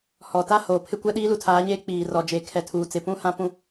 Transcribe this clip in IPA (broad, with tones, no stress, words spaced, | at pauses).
hɔ˨ta˦ hoː˨pʰɪ˦kʷɛ˦ ɗiː˦lu˨tʰaː˨˦ɲeː˦ k͡piː˨rɔ˨ d͡ʒe˨kʰɛ˨ tʰuː˨t͡sɪ˨pũ˦ hã˦pũ˦